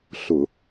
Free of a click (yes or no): yes